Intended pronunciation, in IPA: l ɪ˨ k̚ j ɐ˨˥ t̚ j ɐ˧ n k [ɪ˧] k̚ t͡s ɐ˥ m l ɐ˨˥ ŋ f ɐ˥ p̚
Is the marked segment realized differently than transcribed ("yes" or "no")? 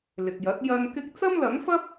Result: yes